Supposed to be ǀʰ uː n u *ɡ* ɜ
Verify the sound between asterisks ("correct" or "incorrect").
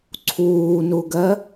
correct